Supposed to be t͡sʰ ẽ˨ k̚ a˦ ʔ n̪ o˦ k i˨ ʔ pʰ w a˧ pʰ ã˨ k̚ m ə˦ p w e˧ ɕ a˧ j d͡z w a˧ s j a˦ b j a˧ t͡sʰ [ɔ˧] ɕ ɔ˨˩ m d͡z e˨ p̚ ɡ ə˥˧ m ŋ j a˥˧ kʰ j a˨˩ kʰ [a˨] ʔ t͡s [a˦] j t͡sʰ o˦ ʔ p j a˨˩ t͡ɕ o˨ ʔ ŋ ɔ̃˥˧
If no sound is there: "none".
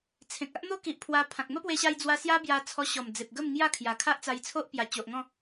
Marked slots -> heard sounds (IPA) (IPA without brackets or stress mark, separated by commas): ɔ˧, a˦, a˧